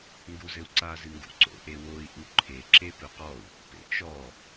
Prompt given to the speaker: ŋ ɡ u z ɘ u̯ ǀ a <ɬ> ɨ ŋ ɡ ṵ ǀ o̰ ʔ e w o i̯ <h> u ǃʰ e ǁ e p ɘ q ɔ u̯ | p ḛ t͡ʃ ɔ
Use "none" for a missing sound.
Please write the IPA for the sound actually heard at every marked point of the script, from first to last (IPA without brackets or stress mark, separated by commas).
z, ʔ